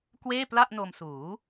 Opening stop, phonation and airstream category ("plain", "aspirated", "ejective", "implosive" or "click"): plain